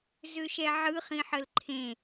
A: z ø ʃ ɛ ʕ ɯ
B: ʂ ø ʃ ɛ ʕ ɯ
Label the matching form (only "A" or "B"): A